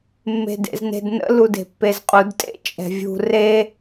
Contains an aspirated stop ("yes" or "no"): no